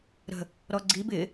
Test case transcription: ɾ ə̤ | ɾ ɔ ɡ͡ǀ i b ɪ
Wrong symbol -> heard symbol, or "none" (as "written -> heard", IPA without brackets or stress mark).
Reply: none